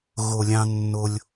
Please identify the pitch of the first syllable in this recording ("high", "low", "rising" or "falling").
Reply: low